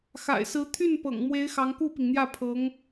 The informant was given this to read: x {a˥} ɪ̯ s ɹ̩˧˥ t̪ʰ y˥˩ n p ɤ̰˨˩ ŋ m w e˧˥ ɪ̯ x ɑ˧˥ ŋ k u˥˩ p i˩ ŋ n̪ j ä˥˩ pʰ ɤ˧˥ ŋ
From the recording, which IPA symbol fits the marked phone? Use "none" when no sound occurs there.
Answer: a̰˨˩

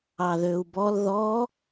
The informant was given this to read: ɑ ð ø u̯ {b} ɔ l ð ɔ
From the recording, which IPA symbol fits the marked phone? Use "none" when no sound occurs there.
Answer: b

